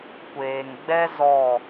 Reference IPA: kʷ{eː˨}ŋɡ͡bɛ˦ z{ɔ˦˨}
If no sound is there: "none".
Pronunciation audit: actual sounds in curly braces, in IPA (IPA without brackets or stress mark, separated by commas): eː˨, ɔ˦˨